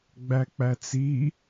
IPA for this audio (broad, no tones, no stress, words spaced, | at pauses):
ɡ͡bæk͡pæt͡si